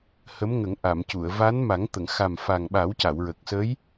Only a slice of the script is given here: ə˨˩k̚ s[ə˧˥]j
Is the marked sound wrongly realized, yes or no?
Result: no